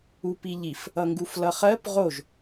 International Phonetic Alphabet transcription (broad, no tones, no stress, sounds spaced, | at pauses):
u p i ʎ i f | ʌ ŋ ɡ u f l ʌ χ ɜ p ʁ o ʒ